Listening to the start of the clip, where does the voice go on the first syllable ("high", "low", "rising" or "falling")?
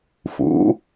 rising